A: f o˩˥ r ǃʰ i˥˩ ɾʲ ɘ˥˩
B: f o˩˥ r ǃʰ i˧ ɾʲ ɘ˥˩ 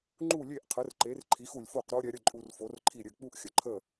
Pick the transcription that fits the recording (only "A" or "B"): A